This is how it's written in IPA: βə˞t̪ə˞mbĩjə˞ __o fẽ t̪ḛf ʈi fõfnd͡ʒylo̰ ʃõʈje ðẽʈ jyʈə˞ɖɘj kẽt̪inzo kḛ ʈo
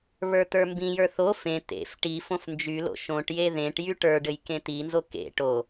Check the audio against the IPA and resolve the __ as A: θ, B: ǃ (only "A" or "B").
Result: A